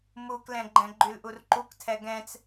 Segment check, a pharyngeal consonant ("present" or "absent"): absent